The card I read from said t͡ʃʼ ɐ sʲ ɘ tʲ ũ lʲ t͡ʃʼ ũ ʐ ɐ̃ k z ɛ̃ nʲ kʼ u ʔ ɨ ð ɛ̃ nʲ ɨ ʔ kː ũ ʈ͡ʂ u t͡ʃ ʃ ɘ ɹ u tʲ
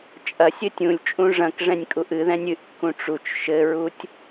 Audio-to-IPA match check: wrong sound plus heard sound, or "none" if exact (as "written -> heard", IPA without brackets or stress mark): z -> ʐ